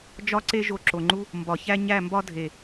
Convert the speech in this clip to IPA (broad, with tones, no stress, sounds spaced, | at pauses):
d͡ʒ ɒ˦ ǀ e˦ ʒ o˧ ǁ o˨ ŋ͡ǃ u˦ | m b ɒ˨ ç æ˦ ɲ æ˦˨ m b ɒ˦ dʱ e˨